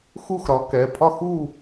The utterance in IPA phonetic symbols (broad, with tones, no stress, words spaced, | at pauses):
xu˥˩xɾɒ˩˥ kɛ˩˧˩ pʰɒ˥˧xu˥˧